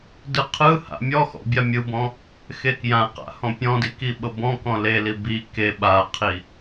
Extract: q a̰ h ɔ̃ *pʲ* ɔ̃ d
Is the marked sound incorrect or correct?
correct